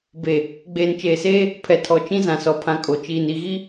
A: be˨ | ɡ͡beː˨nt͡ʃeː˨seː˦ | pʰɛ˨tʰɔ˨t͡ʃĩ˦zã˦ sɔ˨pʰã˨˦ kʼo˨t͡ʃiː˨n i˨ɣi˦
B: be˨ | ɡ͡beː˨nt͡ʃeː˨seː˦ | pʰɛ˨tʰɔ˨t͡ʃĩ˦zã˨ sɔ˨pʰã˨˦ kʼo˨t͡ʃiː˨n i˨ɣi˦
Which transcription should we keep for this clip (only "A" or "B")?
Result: B